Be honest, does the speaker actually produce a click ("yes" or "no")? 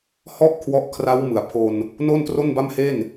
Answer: no